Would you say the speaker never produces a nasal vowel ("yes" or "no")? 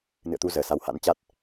yes